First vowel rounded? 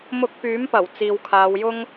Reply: yes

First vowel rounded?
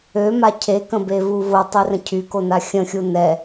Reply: yes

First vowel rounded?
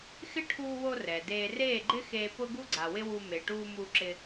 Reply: no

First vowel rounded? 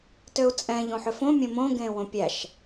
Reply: yes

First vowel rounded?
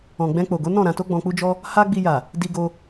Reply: yes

